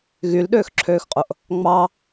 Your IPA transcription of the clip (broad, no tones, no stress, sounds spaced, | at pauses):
ɣ y l ɗ øː x ǁʰ øː x qʼ o ʔ | ŋ͡m ɑ